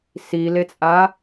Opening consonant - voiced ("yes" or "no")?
no